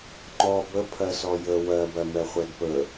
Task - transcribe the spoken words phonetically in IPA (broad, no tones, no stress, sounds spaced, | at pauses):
ŋ͡ǃ ɔ b ə pʰ ɜ s ɔ j ə w ɜ b ɜ m ɛ χʷ ɛ d p ə